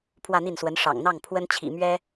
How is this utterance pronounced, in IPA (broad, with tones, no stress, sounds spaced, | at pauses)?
pʰ w ä˥˧ n̪ i˥˩ n s w ə˧˥ n ʂ ɑ̰˨˩ ŋ n̪ ɑ˥˩ ŋ pʰ w ə˥ n t͡ɕʰ ḭ˨˩ m ɥ ɛ˥